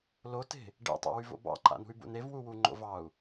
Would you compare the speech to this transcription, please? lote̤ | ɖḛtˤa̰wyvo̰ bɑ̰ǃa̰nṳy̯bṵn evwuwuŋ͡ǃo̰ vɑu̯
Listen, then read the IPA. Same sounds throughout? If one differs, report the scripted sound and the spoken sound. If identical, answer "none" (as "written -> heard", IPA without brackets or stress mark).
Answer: none